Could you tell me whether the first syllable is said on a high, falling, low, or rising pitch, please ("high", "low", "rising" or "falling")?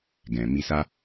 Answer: low